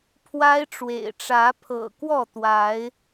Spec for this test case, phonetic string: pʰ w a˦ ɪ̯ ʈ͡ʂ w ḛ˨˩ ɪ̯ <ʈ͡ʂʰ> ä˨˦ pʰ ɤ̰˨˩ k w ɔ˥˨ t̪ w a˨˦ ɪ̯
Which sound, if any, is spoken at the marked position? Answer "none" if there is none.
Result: ʈ͡ʂ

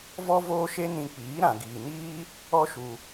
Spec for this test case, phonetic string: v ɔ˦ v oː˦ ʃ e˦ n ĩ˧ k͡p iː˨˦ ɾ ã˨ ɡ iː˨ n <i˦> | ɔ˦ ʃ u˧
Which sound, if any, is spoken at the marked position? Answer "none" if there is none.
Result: iː˦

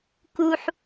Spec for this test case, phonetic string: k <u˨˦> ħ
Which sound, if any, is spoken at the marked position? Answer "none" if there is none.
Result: u˦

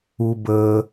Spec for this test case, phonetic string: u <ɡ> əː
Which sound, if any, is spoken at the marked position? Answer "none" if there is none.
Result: b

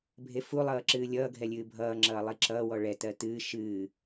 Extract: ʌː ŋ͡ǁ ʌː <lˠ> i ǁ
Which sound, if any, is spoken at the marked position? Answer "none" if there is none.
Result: lˠ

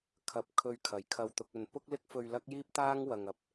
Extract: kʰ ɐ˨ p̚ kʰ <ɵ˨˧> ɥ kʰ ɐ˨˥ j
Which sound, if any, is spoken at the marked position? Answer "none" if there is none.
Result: ɵ˧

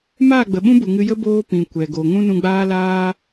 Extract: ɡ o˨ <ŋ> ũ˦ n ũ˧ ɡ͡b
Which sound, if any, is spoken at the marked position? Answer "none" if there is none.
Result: ŋ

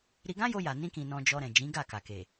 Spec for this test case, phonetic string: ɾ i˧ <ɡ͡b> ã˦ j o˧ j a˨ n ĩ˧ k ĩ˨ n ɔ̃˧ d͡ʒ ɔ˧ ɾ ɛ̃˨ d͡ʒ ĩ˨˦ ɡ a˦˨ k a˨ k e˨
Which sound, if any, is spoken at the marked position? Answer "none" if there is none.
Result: ɡ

